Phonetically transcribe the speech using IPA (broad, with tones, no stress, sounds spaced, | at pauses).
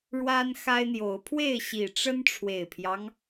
ɻ w a˦ n x a˦ ɪ̯ n̪ j o˨˦ ʊ̯ pʰ w e˥˨ ɪ̯ ɕ i˨˩ ʈ͡ʂ ə˦ n ʈ͡ʂʰ w e˨˩ ɪ̯ pʰ j ɑ˦ ŋ